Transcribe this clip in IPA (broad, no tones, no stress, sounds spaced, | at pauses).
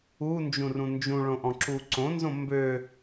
u n d͡ʒ ũ r ũ n d͡ʒ ũ ɭ õ ʔ ɔ̃ ǁ u ǀ õ n z õ m b ø